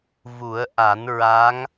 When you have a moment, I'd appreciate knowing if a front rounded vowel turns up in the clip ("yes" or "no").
no